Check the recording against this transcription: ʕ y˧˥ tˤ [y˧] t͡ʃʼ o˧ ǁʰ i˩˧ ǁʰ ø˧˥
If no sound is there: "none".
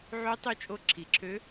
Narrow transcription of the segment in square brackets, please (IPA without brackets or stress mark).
y˧˥